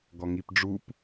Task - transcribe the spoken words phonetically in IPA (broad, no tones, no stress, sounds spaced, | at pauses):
ɡ ɔ ŋ i p ɖ͡ʐ u p